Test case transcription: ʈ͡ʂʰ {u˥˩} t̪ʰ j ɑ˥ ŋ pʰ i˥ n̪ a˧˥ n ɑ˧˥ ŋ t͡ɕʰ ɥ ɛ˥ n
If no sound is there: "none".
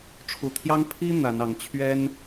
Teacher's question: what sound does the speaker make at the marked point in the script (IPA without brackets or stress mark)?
u˨˩